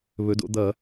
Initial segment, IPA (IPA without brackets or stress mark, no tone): β